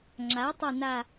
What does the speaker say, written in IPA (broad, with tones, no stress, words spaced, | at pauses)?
ŋ͡ǁa˩˥tˤe˦˨ na˦˨